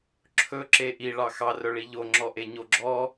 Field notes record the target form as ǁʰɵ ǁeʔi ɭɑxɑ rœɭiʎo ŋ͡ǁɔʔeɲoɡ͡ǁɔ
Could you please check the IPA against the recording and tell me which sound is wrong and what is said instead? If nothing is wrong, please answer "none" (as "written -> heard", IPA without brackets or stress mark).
none